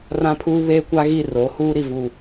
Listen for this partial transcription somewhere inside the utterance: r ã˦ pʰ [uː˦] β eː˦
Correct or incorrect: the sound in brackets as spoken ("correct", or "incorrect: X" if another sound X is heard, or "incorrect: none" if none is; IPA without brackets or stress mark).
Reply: correct